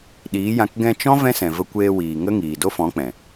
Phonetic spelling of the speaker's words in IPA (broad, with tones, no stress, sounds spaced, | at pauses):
ɗ iː˨˦ j ã˧ k ɡ ɛ̃˧ t͡ʃ ɔ̃˦ v ɛ̃˦ s ɛ̃˨ v ə˧ kʷ eː˧ w iː˨ ŋ ə˦ ŋ iː˨ d o˦ f ɔ̃˨˦ k͡p ɛ̃˨